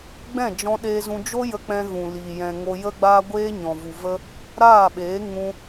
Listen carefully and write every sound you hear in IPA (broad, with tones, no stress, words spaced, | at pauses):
ɡ͡bɛ̃˦˨d͡ʒɔ̃˧ɗeː˧ zũ˧ d͡ʒo˦jə˧ k͡pɛ̃˧ɣũ˨liː˨ jɛ̃˨ ŋo˧jə˦ɡ͡baː˦ɡʷeː˦ ɲɔ̃˨vu˨və˧ | ɾaː˦˨ɓeː˨˦ ŋũ˧